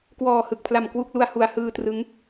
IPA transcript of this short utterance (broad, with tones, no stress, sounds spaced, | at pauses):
k w ɔː˨˩ h ɯ˨˩ k̚ pʰ l a˨˩ m k w u˥˩ k̚ l u˧ a̯ h u˨˩ a̯ h ɯː˧ t r ɯ˦˥ ŋ